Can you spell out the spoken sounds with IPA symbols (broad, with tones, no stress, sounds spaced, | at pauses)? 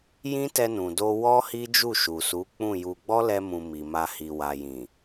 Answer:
j ĩ˦ t ɛ˧ n ũ˨ d o˧ w ɔ˦ h i˦ d͡ʒ u˦˨ ʃ u˨ s u˨˦ k͡p ũ˦˨ j u˧ ɡ͡b ɔ˦ l ɛ˧ m ũ˨ m i˨ m a˧ h i˨ w a˨ j ĩ˨